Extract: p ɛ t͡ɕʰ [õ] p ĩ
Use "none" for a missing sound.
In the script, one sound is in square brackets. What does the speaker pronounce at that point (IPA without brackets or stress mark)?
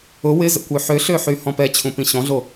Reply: ũ